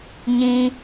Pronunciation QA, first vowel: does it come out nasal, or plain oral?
nasal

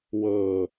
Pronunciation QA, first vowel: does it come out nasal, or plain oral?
oral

